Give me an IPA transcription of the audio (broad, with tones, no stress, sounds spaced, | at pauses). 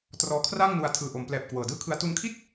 t r ɔː˧ kʰ r aː˥˩ ŋ n u˧ a̯ tʰ ɯː˨˩ ʔ o˩˦ m p l ɛː˨˩ p̚ k w ɤː˨˩ d ɯː˥˩ kʰ ɯ˦˥ a̯ t u˧ n kʰ i˥˩ t̚